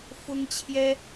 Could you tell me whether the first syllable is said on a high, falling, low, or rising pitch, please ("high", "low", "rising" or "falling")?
high